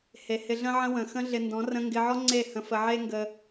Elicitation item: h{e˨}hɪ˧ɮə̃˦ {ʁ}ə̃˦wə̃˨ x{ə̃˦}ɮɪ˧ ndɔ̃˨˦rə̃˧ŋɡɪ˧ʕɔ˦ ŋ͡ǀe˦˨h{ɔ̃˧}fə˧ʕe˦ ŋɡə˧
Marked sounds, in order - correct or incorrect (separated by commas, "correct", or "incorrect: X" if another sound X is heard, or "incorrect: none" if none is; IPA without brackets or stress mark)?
correct, incorrect: ʕ, correct, incorrect: ə̃˧